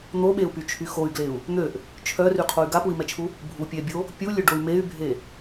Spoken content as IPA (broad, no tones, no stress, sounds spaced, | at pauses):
n̪ o ɓ e u̯ p y t͡ʃʰ y x o y̯ ɡ l e u̯ | n̪ ø ʔ | t͡ʃʰ œ r y qʰ o y̯ ɡ a p u i̯ m ɛ t͡ʃʰ u | bʱ u pʲ ɛ bʲ o | pʲ u lʲ ø ɖ o y̯ m e y̯ bʱ e